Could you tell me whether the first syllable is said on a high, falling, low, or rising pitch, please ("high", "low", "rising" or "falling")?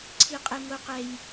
high